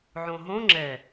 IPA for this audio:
ʕõɦõ ŋ͡ǁɛ

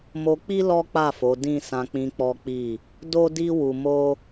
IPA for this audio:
mo˧k͡pi˦ lɔ˦k͡pa˦˨fo˨˦ dĩ˦˨sã˧k͡pĩ˧ k͡pɔ˦k͡pi˦˨ | do˦di˦ wu˧mo˦

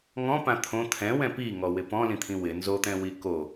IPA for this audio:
ŋɔ̃pã t̪ʰõ t̪ʰɛ̃wɛ̃ piŋɔwɪ pɔ̃lĩt̪ʰĩ wɪ nzot̪ɛ̃wi ko

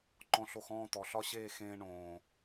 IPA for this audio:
ǃɔ̃˧ɬo˧xɔ̃ː˦˨ t̪ɔ˨ɬɒ˦ɕeː˦˨ xẽː˧ ɳõː˨

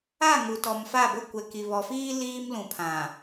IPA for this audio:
a˦˨ŋu˨ tɔ˨mfa˦˨bʊ˦ kʷɛ˨ki˨βɔ˨fiː˦ liː˦mlũ˨pʰã˨

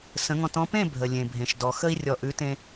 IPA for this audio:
sə̃˨˦ŋɔ̃˧t ɔ̃˧pẽ˦˨ bʱə˨lʲẽ˨ bʱẽ˨ʃdɔ˨ xə˧i̯rʲɔ˨ ʔʉ˨˦tẽ˧

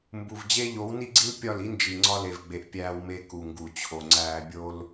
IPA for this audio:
mbu˨vd͡ʑe˦ ʎo˨˦wni˦ɡ͡ǀi˦l pʲɒ˦˨li˦nd͡ʒi˨ ŋ͡ǀɒ˧le˨vɡ͡be˨ʔ pʲæː˧wme˧ ku˨ŋɡu˨t͡ɕʰo˨ŋ͡ǀæː˧ bʲo˦l

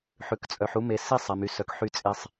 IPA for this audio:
ħʉ˩˧kt͡sʼœ˩˧ħ u˧me˩˧ si˧sˤ ɛ˩˧my˧sœ˧k ħy˧t͡sʼe˧sˤ

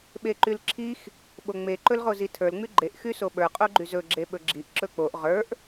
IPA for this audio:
ɓeǃylǁʰix | ɓoŋ͡me ǃɵlʁozitʰə˞l ŋ͡myɡ͡ǃeʔ xysoɓə˞ qʼoɡ͡ǃyzɵ ɡ͡ǁeɓɵɡ͡ǁiʔ ǁɵk͡poʔ ʁə˞ʔ

